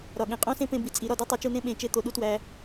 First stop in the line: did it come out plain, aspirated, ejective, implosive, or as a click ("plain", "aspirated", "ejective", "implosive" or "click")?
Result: implosive